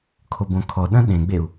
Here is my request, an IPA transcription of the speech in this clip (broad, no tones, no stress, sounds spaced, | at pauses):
kʰ o b õ kʰ ɔ ɗ ɐ̃ ɗ ẽ ɡ͡b e u̯